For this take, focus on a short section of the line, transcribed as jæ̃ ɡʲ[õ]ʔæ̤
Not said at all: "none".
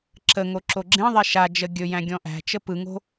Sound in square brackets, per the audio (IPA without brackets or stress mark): ɔ̃